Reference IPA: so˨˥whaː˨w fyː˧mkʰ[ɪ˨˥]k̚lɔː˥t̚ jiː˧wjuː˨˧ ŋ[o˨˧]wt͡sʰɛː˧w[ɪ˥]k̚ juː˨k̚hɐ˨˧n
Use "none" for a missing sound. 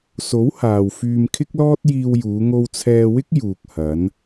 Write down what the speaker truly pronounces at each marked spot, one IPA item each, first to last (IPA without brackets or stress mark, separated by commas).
ɪ˥, o˧, ɪ˥